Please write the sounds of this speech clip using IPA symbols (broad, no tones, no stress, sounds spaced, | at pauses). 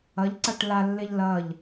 ɐ ʎ ǀ a ʈ l a lː e ʎ l ɐ ʎ